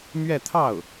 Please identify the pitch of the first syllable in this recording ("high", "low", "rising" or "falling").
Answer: falling